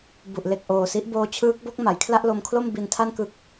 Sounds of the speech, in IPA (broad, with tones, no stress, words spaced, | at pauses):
bu˨˩ʔle˨˩k̚ʔoː˨˩si˦˥ʔ boː˧t͡ɕʰɯː˦˥k̚bo˦˥k̚ ma˩˦jkʰla˥˩ʔlo˧mkʰlo˥˩m bi˧ntʰa˥˩nkɯ˦˥k̚